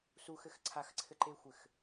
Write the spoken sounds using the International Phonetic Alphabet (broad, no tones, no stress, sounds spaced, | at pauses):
s u x ɘ x ǀʰ a x ǀʰ ɘ ǃ e xʷ ɘ x